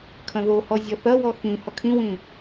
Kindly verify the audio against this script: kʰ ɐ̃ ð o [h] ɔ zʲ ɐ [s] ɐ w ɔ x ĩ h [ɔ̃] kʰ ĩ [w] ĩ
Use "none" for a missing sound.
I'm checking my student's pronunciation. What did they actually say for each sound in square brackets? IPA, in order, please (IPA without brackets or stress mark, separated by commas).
h, θ, ɔ, w